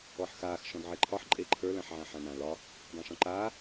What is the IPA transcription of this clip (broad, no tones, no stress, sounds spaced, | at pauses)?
ɔ ħ x aː x ʃ ɔ̃ d ʕ e ǃʰ ɒ ħ ǃʼ e ǃʰ ə˞ l ã ħ ʕ ã ħ ã n ã l ɒ | dˤ ã ʃ ɔ̃ ǃ aː